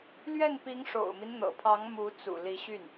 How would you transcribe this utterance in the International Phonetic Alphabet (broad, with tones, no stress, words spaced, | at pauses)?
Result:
lɥɛ˥˩npi˧˥ŋ ʂo̰˨˩ʊ̯mi˦n n̪ɤ̰˨˩pʰɑ˧˥ŋ mu˧˥t͡sṵ˨˩ li˧˥ɕy˥˩n